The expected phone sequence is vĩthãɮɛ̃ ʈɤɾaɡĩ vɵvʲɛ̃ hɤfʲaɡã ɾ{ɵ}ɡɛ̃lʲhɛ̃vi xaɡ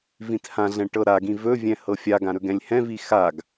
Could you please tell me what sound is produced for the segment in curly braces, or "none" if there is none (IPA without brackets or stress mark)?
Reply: ɵ